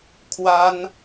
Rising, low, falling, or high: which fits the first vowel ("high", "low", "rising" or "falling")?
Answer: high